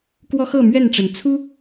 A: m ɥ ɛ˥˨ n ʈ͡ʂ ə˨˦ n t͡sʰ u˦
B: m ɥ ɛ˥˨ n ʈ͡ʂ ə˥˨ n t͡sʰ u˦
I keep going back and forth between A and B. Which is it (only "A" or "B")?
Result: A